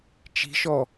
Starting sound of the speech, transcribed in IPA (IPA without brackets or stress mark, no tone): t͡ʃ